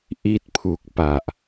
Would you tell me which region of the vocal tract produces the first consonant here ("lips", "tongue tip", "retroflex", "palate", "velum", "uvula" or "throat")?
throat